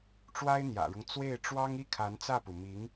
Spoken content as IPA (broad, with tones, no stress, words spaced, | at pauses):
ʈ͡ʂwa˥ɪ̯n̪jä̰˨˩ɻʊ˦ŋ t͡swe˥˩ɪ̯ʈ͡ʂwɑ˥ŋ i˥kʰa˧˥nt͡sä˥˩pu˩ mi˧˥ŋ